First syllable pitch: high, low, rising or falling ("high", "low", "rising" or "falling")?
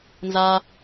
low